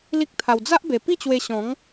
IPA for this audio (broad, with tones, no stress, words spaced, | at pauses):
li˦k̚t̪ʰa˧w d͡za˦ʔbe˨˩ pi˥˧t͡ɕwe˧ ɕɔ̃˨˦ŋ